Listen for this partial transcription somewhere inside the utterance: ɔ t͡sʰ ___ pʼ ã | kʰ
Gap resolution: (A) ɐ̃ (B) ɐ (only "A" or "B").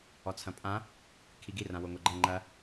A